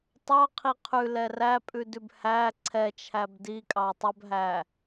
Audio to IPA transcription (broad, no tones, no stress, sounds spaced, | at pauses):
tˤ ɑ qʰ i qʰ ʉ l ɛ r æ pʼ ʉ d ʉ b h æ ǀʰ ɛ t͡ʃʰ æ b d i kʼ ɑ tˤ ɵ b ɦ æ